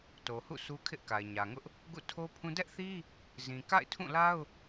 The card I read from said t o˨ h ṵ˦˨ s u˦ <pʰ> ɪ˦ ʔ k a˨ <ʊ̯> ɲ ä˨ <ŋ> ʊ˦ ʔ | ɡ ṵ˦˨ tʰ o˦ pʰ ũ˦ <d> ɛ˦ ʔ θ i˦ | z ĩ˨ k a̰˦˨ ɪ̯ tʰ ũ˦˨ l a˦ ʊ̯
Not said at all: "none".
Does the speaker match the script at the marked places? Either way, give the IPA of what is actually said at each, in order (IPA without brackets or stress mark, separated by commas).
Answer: kʰ, ɪ̯, ŋ, d